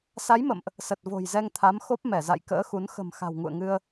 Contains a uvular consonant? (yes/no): no